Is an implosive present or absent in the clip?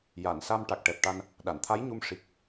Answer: present